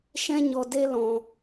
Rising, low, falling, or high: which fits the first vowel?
high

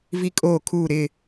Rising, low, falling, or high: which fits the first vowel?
high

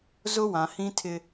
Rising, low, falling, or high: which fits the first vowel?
high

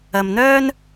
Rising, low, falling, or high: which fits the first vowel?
low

